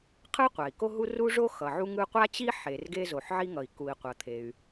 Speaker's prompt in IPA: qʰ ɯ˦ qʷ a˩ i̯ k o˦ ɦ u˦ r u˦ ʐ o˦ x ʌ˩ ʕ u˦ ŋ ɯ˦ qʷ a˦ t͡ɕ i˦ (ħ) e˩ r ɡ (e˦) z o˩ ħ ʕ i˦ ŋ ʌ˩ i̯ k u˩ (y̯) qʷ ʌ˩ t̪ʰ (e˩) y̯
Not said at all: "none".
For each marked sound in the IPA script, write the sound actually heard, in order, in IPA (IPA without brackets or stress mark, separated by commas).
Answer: ħ, e˦, i̯, e˩